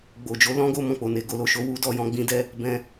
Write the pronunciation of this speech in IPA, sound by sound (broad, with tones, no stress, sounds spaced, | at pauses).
ɡ͡b o˨ d͡ʒ o˨˦ l ɔ̃˦ ɡ o˦˨ m ɔ̃˨ k͡p o˨ n e˨ ɡ o˧ l o˨ ʃ o˧ w u˦ d ɔ˦˨ j ɔ̃˧ ɡ͡b ĩ˧ d ɛ˧ | b ɛ̃˧